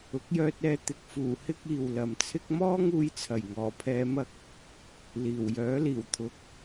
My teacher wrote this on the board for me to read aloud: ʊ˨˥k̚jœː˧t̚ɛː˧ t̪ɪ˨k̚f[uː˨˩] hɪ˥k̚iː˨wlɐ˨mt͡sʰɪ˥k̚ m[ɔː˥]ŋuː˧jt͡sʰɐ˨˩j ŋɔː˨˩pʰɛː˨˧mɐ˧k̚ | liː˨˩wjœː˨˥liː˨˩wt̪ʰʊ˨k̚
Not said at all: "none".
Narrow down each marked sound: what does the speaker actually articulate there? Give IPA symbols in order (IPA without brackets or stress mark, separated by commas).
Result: uː˨˩, ɔː˥